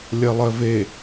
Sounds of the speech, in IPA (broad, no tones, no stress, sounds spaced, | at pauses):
lʲ ɜ lˠ ɜ v e